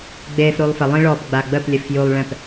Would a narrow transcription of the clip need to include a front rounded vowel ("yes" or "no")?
no